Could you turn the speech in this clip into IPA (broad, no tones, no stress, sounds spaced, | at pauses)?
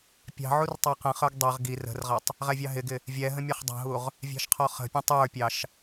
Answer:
pʲ ɑ̤ ʕ u r tˤ ɑ q ə̃ χ ə˞ ɡ dˤ ʌ ʁ ɡ i r ə̤ r ʁ ʌ tˤ | ʁ ɛ vʲ ɑ ɦ ɪ ɡ ɪ | vʲ ɛ ɦ ə̃ mʲ ɛ χ dˤ ɑ̤ ɦ u ʁ | vʲ ɑ̤ ʃ qʰ ɔ χ ə̤ pʲ ɔ̃ tˤ ə˞ pʲ ɑ ʃ